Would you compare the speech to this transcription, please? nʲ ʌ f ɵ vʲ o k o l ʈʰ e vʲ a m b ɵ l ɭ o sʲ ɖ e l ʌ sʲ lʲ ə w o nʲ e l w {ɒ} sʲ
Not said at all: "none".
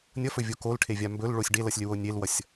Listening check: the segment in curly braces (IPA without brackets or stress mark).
ʌ